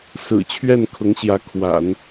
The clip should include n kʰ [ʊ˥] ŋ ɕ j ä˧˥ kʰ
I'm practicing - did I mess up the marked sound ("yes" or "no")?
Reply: yes